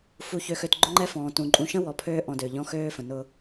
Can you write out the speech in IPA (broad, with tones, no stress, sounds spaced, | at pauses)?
f u˨ ç ø˨ x ø˨ t ɡ͡ǃ ʊ˦ ŋ͡ǃ ɛ˦ f ɔ̃ː˨ t ũ˨ ǃʼ ũ˨ ʃ ə̃˦ w ɔ˨ pʰ øː˦ ʔ ɔ̃˨ d ø˨ ʎ ɔ̃˦ x øː˦ f ə̃˨ n ʊ˦